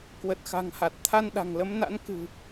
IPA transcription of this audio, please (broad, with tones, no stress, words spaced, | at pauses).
kwə˨˩t̚xa̤˨˩ŋha˨˩t̚ t̪ʰa˧nɗa̤˨˩ŋlə˨˦mna̰˧˥n kɨ̤˨˩